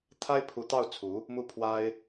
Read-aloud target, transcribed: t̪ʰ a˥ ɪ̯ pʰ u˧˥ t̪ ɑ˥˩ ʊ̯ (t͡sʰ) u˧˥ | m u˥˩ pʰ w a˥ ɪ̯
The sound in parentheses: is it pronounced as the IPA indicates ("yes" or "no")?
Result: yes